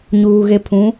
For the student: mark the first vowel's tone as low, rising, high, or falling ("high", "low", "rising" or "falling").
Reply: low